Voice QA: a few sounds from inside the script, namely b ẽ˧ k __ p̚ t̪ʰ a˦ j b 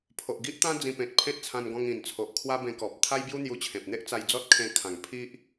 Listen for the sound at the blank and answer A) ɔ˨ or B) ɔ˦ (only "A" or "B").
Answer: A